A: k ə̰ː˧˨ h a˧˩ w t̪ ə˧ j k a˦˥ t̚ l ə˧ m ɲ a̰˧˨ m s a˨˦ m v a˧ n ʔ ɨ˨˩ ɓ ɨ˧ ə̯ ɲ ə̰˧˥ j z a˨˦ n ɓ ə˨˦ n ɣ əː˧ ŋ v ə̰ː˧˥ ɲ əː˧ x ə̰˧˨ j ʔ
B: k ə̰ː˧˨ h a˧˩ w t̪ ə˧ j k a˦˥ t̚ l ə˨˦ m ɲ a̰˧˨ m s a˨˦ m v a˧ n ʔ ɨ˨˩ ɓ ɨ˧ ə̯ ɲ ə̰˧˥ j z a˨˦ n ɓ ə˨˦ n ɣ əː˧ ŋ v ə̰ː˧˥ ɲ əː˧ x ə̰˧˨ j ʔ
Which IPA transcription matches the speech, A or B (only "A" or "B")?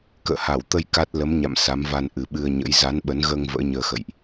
B